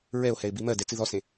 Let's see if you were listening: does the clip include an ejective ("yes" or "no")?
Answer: no